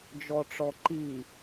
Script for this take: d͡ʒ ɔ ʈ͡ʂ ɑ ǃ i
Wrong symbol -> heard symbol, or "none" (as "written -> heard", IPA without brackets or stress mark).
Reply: ɑ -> ɔ